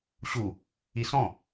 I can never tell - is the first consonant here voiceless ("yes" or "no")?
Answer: yes